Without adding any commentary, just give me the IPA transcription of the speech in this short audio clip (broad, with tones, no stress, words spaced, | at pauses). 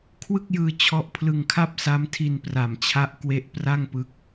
kʰwɯ˥˩k̚jɯː˧ t͡ɕʰɔ˦˥ʔpʰlɯ˧ŋkʰa˥˩p̚ sa˦˥mtʰi˧npra˨˩mt͡ɕʰa˦˥ʔ kwe˦˥ʔpra˥˩ŋpɯ˦˥k̚